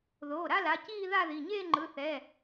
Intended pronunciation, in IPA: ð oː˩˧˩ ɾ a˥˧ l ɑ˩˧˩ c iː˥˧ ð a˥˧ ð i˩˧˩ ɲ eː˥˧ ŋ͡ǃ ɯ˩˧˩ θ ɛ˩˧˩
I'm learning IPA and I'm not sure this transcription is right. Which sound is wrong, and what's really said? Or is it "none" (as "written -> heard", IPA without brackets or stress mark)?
ɑ˩˧˩ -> a˩˧˩